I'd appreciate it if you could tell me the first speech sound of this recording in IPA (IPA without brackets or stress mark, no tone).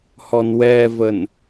h